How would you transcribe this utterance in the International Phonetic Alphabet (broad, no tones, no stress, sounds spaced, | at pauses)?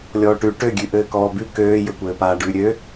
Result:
lʲ ɔː ʈ ʉ ʈ ø ɡʲ ʉ ʔ ɘː k ɔː b ʉ k øː j ɘ kʷ ɘː p aː ɖ ʉ ɾʲ ø